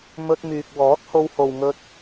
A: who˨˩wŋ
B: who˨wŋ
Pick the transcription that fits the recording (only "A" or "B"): B